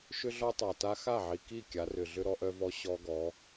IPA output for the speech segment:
ʃ ʏ˦ ɮ ɔ˦ tˤ a˨ t a˦ x a˦˨ ʕ i˨ k i˦˨ kʲ a˨˦ r ʏ˨ ɮ ʏ˦ ɾ ɔ˦ ʔ œ˦ v ɔ˦ ɕ ɔ˦ ɡ ɔ˨˦

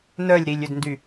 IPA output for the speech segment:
n œ lʲ ɾ i lʲ ʏ d n d y

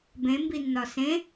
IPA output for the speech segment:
b ẽ m b i nː ɒ s ẽ

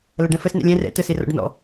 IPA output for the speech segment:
l ɐ ɖ ɛ̃ f ə s n ɛ̰ lʲ ɛ̃ r ɛ̰ t ə s e r ɔ̰ ɖ n ɔ̰

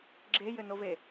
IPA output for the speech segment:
ɡ͡ǁ e j ɘ n o v e

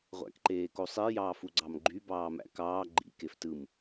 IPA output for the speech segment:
ʁʷ æ̰ k ǃ eː k o sˤ i j ɑː f u ɡ͡ǀ ɑ m ɡ͡ǃ y b ɑː m æ̰ k ɑː ɡ͡ǃ ḭ k e f t ɯ m

